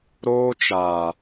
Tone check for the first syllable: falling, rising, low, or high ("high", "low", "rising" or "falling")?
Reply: high